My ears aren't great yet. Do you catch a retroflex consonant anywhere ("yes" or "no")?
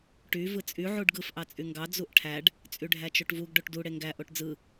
yes